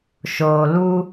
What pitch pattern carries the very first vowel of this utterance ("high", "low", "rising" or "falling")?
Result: low